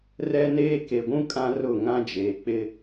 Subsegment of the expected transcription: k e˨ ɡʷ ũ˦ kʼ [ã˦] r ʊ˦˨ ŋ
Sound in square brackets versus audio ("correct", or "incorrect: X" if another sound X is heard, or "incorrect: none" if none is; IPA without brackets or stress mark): correct